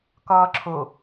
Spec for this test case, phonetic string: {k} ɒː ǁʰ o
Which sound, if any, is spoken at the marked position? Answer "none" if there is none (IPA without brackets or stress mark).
k